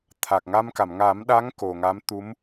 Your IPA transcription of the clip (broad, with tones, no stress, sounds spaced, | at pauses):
t̪ʰ a˨˩ k̚ ŋ a˧ m k a˨˩˨ m ŋ a˨˩˦ m ɗ a˧˥ ŋ k o˨˩ ŋ a˧˥ m t̪ u˧˥ m